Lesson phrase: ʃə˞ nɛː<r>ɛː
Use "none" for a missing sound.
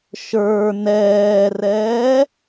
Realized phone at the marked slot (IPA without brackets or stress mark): r